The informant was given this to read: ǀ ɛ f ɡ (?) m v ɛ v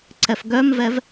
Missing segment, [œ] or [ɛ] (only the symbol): œ